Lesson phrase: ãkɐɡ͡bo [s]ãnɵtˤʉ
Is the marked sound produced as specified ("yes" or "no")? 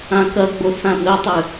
yes